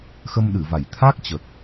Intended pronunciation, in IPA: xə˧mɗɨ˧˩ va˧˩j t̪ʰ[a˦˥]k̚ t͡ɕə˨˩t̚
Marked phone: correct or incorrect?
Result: correct